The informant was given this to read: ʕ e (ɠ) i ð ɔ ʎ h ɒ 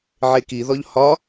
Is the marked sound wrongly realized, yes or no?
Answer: yes